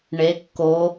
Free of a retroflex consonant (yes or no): no